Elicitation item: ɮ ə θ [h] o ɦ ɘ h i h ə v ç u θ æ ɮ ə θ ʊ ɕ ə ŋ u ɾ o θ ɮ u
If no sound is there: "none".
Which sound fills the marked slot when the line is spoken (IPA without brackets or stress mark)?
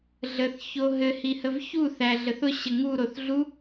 ç